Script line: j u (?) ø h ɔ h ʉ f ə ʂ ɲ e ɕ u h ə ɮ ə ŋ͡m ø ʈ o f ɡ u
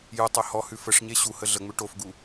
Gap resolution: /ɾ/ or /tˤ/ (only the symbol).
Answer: tˤ